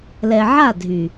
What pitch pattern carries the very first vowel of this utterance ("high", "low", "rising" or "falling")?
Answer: low